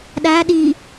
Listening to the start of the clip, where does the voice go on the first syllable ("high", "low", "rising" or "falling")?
rising